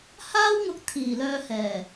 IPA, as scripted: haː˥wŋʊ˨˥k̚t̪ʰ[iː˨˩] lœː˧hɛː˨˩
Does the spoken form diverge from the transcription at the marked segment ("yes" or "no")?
no